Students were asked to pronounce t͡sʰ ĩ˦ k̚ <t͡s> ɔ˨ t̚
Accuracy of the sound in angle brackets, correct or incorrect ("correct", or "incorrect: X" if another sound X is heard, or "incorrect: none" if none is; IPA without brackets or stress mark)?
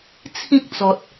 correct